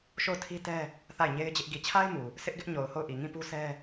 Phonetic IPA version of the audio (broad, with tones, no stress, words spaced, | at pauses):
ʃo˦˨ʊ̯tʰi˦tɛ˦ | θa˦˨ɪ̯ɲe˦ɪ̯d͡ʑɪ˦ʔ ɡi˨t͡ɕʰa˦ɪ̯ mu˨ | sʰɪ˦ʔɡɪ˦ʔ ɲo˨ʊ̯ho˦˨ʊ̯ʔi˨ ŋĩ˦˨pu˦ sʰɛ˦